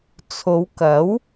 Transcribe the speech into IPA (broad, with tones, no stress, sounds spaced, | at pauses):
t͡sʰ o˨˧ w k ɐ˨˥ w